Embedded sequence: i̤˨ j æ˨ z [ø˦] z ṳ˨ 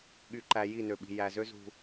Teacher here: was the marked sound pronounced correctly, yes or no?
yes